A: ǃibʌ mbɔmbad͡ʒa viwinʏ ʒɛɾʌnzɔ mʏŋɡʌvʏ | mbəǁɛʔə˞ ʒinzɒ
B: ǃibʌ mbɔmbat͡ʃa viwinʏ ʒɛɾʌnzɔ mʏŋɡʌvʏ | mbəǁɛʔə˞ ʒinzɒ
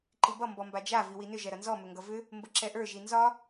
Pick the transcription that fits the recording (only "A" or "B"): A